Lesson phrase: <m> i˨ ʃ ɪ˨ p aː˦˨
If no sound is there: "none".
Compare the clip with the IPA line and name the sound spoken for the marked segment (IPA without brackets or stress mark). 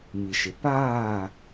m